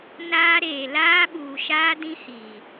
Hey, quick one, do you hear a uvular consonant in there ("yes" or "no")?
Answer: no